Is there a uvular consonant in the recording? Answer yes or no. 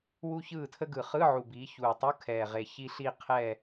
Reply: yes